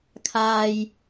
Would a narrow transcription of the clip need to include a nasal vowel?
no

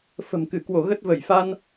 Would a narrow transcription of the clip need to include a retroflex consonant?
no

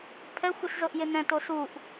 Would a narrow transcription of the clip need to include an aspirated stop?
yes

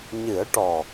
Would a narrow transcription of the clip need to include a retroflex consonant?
yes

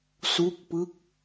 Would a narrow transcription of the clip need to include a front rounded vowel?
no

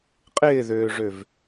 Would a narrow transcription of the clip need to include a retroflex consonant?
yes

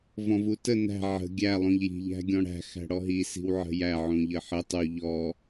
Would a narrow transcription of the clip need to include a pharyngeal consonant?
yes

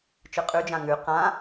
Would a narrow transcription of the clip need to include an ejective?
yes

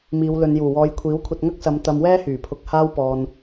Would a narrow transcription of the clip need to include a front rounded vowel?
yes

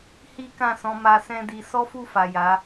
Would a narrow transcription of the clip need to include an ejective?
no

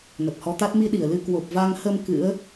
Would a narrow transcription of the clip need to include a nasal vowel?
no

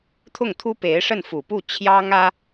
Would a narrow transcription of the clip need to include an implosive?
no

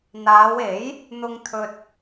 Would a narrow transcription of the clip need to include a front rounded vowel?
no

